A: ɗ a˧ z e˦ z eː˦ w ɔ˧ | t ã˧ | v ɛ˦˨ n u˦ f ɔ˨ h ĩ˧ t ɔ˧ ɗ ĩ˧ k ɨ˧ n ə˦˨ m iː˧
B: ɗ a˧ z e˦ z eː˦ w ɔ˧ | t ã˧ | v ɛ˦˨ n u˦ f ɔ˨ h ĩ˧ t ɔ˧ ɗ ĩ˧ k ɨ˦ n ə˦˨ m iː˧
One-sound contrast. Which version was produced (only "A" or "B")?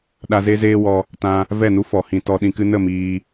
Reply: B